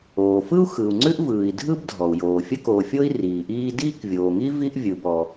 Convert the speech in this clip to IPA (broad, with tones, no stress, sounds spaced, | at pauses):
oː˩ f ɯ˥ u̯ x ɯ˩ u̯ ŋ͡ǀ ʉ˥ ʔ v ɯː˩ i̯ dʱ ɯ˥ b dʱ ɔ˩ u̯ j oː˩ fʲ ə˥ k oː˩ fʲ o˥ i̯ r iː˩ ʔ iː˥ d iː˥ k vʲ oː˩ ŋ i˥ v i˥ ʔ vʲ ɯ˩ b ɔ˩